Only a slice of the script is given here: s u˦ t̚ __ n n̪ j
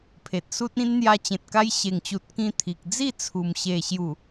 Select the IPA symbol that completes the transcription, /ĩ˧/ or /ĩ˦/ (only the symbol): ĩ˦